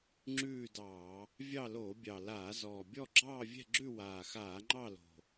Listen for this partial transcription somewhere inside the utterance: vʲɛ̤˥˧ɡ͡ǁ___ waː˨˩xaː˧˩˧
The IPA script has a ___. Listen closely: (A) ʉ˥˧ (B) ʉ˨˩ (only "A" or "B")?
A